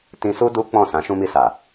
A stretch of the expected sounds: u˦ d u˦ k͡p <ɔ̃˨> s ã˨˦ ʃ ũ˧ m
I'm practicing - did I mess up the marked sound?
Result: yes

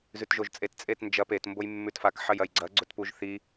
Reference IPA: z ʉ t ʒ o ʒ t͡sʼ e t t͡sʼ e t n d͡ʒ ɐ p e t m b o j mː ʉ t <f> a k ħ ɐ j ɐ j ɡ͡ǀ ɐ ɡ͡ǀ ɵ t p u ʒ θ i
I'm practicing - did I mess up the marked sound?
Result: no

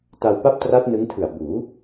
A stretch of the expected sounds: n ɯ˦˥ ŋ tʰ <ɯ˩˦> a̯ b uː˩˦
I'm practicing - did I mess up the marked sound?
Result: yes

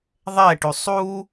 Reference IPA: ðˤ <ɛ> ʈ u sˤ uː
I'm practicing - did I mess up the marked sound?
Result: no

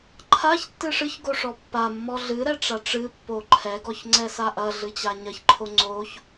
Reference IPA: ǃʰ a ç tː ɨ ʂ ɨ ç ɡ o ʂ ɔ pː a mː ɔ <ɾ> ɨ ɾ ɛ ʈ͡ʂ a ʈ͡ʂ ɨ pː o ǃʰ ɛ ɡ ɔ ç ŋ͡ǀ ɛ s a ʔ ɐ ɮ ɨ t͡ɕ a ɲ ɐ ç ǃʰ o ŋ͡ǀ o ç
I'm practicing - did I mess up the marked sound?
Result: yes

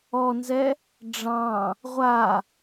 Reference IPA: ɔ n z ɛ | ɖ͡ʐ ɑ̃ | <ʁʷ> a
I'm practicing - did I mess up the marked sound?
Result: no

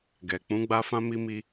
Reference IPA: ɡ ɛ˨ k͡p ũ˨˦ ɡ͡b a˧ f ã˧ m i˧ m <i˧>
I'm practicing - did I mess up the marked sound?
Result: no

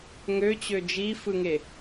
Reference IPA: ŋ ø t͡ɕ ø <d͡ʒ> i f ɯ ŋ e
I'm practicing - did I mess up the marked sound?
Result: no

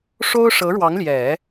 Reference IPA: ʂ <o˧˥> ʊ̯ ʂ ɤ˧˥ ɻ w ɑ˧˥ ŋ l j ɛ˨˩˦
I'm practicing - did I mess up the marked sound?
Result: yes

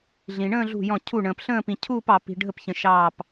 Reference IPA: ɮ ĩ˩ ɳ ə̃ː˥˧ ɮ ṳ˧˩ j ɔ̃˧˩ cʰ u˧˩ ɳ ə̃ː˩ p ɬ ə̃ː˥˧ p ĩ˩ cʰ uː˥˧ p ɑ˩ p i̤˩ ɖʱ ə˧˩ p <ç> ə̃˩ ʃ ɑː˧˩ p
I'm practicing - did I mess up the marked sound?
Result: no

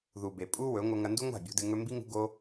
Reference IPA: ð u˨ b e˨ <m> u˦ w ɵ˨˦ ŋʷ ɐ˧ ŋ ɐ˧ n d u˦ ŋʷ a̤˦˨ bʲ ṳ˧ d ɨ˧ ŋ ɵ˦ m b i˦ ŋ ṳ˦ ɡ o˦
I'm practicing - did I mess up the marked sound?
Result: yes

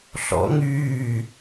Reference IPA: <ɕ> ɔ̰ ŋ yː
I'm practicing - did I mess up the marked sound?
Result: yes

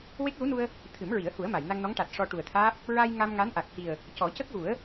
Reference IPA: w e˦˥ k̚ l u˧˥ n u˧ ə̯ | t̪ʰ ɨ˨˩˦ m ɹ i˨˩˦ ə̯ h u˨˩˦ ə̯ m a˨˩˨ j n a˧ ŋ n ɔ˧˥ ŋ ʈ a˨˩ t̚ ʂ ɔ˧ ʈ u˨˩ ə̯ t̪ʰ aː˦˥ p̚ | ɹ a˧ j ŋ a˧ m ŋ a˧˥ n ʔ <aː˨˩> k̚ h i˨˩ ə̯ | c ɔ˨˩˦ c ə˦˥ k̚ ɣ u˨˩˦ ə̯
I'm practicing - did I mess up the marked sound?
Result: yes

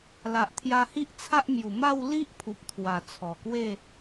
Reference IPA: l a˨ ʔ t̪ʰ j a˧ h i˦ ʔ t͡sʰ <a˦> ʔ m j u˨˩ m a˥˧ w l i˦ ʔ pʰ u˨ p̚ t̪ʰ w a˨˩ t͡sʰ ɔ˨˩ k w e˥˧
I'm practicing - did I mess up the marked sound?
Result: no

